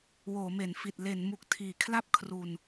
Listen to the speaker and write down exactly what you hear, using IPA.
w oː˩˦ m e˩˦ n f i˨˩ t̚ l e˩˦ n m u˨˩ k̚ tʰ iː˩˦ kʰ l a˥˩ p̚ kʰ r u˧ n

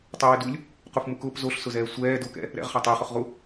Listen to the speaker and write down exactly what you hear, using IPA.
tˤ e w ɪ d u lʲ | q u f m u k ʊː p z o ɬ s ʊ z ɛː sʷ ɛː d o k ɛ̰ | ɾ ɛ̰ ʁ χ a tˤ e χ ʊ χ ʁ u

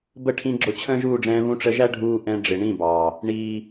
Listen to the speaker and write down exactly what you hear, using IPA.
b ə˦˨ ʈʰ ĩ˧ ɡ͡ǁ ʊ˨˦ t͡ɕʰ ə̃ː˦ ʒ uː˦˨ ɖ͡ʐ ɛ̃ː˧ β ũ˧ ʈ͡ʂ ə˧ ʒ æ˦ ɖʱ uː˧ ʔ ɛ̃˧ ɖ͡ʐ ɪ˨ ɳ ĩ˦˨ b ɑː˨ | ɳ iː˨

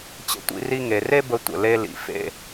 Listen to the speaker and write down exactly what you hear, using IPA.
t͡ɕ ə̰˧ tʷ ḭ˧ r i˧ ŋ e˨ r e˦ b ə˧ tʷ ə̰˨ l e˧ l ḭ˨ f ḛ˧

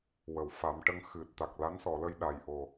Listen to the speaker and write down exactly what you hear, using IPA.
w ə˨˩˨ w f a˨˩˦ m ʈ ə˧˥ ŋ x ɨ˨˩ t̚ t̪ a˨˩ k̚ l a˧˥ n s ɔ˨˩˨ l ə˧ j ɗ a˨˩ j ʔ o˨˩

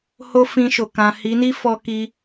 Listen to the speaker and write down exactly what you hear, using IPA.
h o˦ f ĩ˧ ʃ o˨ k ã˨ h i˨˦ n i˦ f ɔ˧ k i˧

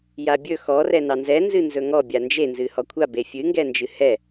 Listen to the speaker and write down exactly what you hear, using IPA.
j a bʲ ɵ x ɔ r ɛ n ɑ n z ɛ n z ɨ n z ɵ ŋ ɔ bʲ a n d͡ʒ e n z ɨ h ɔ kʷʰ a b e fʲ ɨ ŋ ɡ ɛ n d͡ʒ ɨ h ɛ

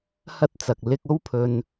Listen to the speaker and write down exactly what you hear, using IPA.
h ɐ˥ t̚ t͡s ɐ˨ k̚ l ɪ˧ k̚ o˥ w pʰ ɵ˧ n

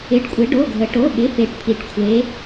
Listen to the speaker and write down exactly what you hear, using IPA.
ɪ˧˥˧ ɖ kʷʼ ɪ˧˥ ɖ o˧˥˧ ɡʱ ə˧˥ ʈ o˧˥˧ ɓ ɪ˧˥˧ f e˧˥ ʈ pʰ i˧˥ ʈ kʷʰ e˧˥

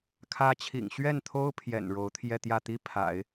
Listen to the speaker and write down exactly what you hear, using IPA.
kʰ ä˧˥ t͡ɕʰ ḭ˨˩ ŋ ɕ ɥ ɛ˥˩ n t̪ʰ o˥ ʊ̯ pʰ j ɛ̰˨˩ n ɻ o˧˥ ʊ̯ t̪ʰ j ɛ˥˧ t̪ j ä˥˩ t̪ i˥ pʰ a̰˨˩˦ ɪ̯

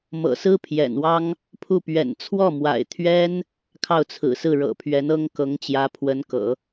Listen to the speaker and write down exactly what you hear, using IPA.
m ɤ̰˨˩ s ɹ̩˥ pʰ j ɛ̰˨˩ n w ɑ˥ ŋ | pʰ u˥˩ p ɥ ɛ̰˨˩ n t͡sʰ w ɔ˥˩ m w a̰˨˩ ɪ̯ t̪ʰ ɥ ɛ˥ n | kʰ ɑ˥˩ ʊ̯ t͡sʰ ɹ̩˨˩ s ɹ̩˥˩ ɻ ɤ̰˨˩ pʰ ɥ ɛ˧˥ n ɤ˥ ŋ k ɤ˧˥ ŋ t͡ɕ j ä˧˥ pʰ w ə˧˥ n k ɤ̰˨˩˦

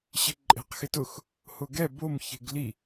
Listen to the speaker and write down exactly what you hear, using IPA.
ɕ ɪ ǃʼ e̤ q x ɪ t ʊ x | h ʊ ɡ ɛ b o m ç e̤ ɡ l i

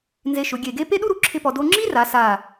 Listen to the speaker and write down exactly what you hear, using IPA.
n z e˧ ʃ ʊ˩˧ ɡʲ e˧˩ ɡ e˥ p e˥ ɗ u˥ ɾ u˩˧ ǁʰ ɪ˥ p ɔ˧ d o˧ ŋ͡ǁ i˥ r a˩˧ s a˧˩

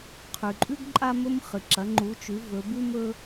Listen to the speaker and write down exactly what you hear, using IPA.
qʰ ʉ˩ ǃʼ ʉ˦ ɡ ǃʼ a˦ m ɵ˦ m χ ɨ˩ ǁ ɐ˩˧ ŋ͡ǃ u˩˧ t͡ʃ ʉ˩˧ v ɵ˩˧ b ʉ˦ m ɵ˦

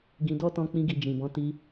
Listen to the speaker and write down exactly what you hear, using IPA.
ɡ ĩ˧ d ɔ˦ t ɔ̃˧ k͡p ĩ˧ ɡ i˨ d͡ʒ ĩ˨ b ɔ̃˨˦ t i˧

